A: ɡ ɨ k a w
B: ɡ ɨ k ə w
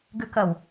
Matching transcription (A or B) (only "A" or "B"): B